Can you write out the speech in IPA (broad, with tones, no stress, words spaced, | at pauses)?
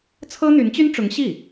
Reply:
t͡sʰɤ˥n̪y˧˥nt͡ɕy˥nʈ͡ʂʊ˧˥ŋ ɕi˥˩